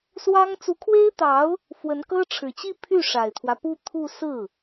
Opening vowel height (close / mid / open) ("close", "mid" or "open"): open